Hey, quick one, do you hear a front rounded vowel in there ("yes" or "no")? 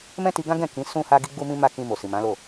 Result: no